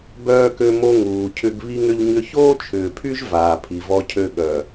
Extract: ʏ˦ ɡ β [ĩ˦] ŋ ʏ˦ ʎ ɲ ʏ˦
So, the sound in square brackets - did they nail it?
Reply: no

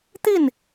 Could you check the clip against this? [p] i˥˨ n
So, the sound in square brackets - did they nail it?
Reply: no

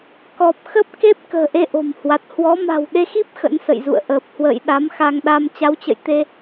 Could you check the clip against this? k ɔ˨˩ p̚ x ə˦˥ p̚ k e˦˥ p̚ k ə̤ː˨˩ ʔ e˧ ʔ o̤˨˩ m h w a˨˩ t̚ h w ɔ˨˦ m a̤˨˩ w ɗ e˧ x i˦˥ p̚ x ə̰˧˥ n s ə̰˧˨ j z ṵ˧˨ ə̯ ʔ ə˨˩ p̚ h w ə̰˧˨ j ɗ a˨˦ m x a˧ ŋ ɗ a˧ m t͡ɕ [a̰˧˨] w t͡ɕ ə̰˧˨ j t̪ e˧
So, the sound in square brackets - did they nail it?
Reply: no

